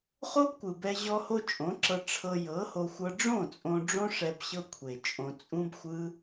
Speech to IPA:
χ o˦ b kʷ ɯ˨ b ɛ˧ ʑ ɔ˧ h o˧ t͡ʃʼ õ˨˦ ǁ ɤ˧ ʈ͡ʂʰ ɤ˧ j ɤ˨˦ h o˧ xʷ ɤ˧ ɖ͡ʐ õ˦˨ t͡sʼ õ˧ ɖ͡ʐ õ˦ ʂ ɛ˧ b ɕ ɤ˦ kʷʰ e˨ t͡ʃʼ õ˧ t͡sʼ ũ˦ b xʷ ɯ˦

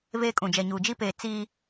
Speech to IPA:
v eː˦ kʼ ũ˨ d͡ʒ ɛ˨ ɲ uː˨ d͡ʒ i˦ p eː˨ t͡s iː˦

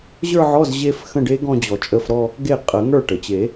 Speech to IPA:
ʑ ə˞˥˧ ʕ ɔ˧˥˧ z ʑ e˥˧ f x ə̃˥˧ ɖ e˦˥ ɡ ɔ̃˥˧ d͡ʑ ɔ˨˩˦ t͡ʃʼ ə˧˥˧ f ɾ ɔ˥˧ | ɡ e˥˩ qʼ ə˨˩˦ ŋ ə˞˥˩ ʈ ə˩ t͡ɕ e˨˩˦

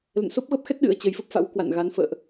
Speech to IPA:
l ə̰˧˨ n s o˦˥ p̚ ɣ ə˦˥ p̚ x ɛ˦˥ t̚ ɗ ɨ̰˧˥ ə̯ t͡ɕ ə˨˦ j f ə˦˥ p̚ f a̰˧˥ w k w a̰˧˨ n ɣ a˨˦ n f ə̰ː˧˨ ʔ

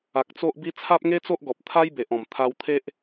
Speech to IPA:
a˨ k̚ t͡s o˦ ʔ b i˦ t͡sʰ a˦ p̚ ŋ e˦ t͡s o˦ ʔ ɡ ɔ˨ p̚ t̪ʰ a˦ j b e˨ ʔ ɔ̃˨˩ m t̪ʰ a˧ w t̪ʰ e˦ ʔ

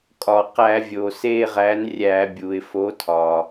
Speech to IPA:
kʼ ɒ˩ q æ˧˩˧ vʲ o˩ s e˦˨ ʁ æ˨˥ n rʲ æ˧˩˧ bʲ u˩ ɪ̯ f o˨˥ tʰ ɒ˩

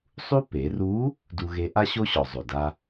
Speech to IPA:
sˤ u˥ p e˩˧ r u˧˥ | d u˧ ɣ e˧˥ ʔ a˥ ɕ o˥ ɕ ɔ˩ zˤ o˩ d a˧

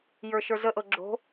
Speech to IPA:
j ə˞ ʃ ə˞ z ə ʔ ɤ ɡ͡ǁ o̤

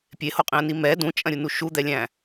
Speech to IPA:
pʲ e h o qʼ ĩ ə̯ n i m ɛ d ũ t͡ʃʼ ɐ̃ ɾʲ u n u ʃ u d̪ ɛ lʲ æ̃

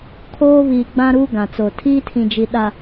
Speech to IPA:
kʰ oː˦ β iː˨ ɡ͡b ã˦ ɾ uː˦ ɡ ã˨ t͡s o˨ tʰ iː˦ tʰ ĩ˨ d͡ʒ i˨ ɗ a˨

